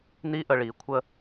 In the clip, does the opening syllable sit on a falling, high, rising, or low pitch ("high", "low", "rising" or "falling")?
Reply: high